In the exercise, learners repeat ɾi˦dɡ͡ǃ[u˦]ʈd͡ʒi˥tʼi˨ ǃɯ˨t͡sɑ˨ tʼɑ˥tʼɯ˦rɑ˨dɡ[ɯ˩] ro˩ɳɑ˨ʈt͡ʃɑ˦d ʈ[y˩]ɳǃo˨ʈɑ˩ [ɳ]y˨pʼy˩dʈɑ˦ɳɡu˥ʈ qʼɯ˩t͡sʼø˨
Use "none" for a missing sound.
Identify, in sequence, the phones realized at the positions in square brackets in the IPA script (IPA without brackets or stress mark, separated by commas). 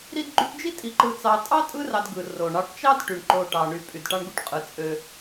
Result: y˦, ɯ˩, y˩, ɳ